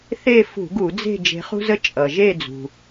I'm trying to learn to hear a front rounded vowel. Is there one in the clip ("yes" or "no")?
no